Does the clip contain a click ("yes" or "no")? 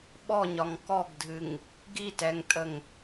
no